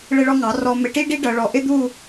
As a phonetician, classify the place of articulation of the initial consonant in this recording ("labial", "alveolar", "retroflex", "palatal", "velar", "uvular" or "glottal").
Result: retroflex